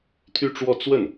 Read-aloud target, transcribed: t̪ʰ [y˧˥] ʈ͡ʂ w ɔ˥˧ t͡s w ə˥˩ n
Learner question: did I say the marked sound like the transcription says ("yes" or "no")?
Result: no